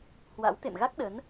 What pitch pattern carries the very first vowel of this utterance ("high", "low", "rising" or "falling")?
rising